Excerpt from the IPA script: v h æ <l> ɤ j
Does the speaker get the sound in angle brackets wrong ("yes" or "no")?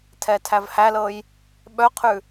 no